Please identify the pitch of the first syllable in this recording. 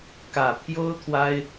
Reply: low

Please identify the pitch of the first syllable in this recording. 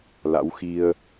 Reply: rising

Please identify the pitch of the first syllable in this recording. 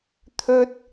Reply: high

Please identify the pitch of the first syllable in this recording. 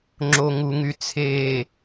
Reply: low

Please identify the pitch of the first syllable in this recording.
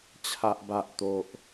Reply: high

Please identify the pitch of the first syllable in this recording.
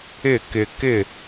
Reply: falling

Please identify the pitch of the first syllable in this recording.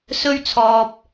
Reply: high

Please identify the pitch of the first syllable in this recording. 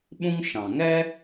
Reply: high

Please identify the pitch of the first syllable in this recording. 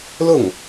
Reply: falling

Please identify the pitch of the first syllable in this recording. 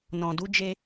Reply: low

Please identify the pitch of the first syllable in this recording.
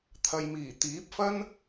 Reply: low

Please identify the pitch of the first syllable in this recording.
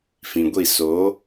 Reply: low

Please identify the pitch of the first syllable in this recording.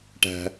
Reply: high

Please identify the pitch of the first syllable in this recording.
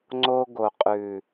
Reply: high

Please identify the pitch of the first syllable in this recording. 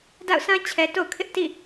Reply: falling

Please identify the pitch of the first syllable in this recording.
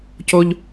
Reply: high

